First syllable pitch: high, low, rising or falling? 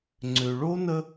low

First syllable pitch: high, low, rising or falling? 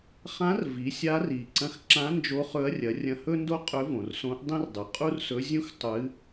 rising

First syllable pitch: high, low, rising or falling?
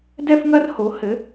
high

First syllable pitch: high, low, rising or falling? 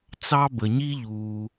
high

